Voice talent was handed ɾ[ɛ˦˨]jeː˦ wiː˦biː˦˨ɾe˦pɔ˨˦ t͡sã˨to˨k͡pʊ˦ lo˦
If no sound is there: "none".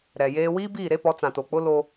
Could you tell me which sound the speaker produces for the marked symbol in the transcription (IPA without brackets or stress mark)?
ɛ˨